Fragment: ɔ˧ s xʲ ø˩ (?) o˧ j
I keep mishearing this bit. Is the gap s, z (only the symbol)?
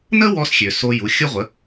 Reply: s